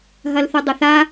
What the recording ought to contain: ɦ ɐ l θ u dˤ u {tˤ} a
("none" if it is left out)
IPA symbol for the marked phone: θ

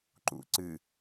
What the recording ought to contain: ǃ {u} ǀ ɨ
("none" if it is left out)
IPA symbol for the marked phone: ṵ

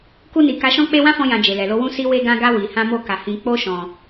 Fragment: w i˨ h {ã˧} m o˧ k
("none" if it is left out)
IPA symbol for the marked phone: ã˧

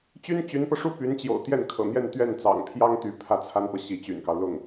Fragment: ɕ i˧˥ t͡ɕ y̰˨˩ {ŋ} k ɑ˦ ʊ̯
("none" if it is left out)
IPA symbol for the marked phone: n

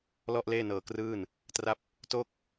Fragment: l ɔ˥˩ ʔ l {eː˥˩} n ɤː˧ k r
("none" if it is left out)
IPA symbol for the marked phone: eː˥˩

